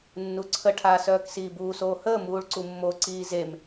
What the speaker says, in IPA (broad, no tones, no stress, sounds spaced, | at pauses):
nː u ǀʰ ə ʈʰ aː s œː k s iː b uː s oː h əː m uː ɭ ǀ u mː o ǀ iː z e m